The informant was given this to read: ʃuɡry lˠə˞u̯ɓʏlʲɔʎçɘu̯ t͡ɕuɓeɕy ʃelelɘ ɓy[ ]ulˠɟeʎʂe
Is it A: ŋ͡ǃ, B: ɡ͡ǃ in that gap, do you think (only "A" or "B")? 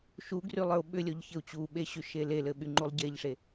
A